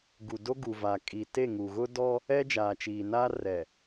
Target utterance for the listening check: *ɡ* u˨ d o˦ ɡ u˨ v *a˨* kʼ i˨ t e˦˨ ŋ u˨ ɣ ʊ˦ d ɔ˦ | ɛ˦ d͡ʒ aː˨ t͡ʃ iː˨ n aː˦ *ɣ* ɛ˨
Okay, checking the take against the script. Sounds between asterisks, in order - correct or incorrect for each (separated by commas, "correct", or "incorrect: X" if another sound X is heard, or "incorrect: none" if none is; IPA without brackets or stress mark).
correct, correct, incorrect: r